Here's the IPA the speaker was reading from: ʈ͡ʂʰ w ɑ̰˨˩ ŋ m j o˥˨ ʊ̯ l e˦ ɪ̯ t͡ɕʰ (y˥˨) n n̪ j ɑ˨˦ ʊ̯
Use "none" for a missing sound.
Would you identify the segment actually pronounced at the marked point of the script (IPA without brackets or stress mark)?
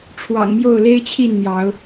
i˥˨